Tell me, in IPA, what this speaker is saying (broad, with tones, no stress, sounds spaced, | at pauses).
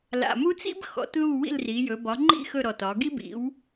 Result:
l a̰˨˩ m u˥ t͡s ḭ˥ b x ɔ̰˩˥ t ð u˥˨ w ḭ˥˨ l r i˩˧ j ɵ˩˧ b ɒ˩˥ ŋ͡ǃ ḭ˥˨ x ɵ˥˨ ɾ ɔ˨˩ t ɒ˩˧ ɡ i˥ b ḭ˩˥ w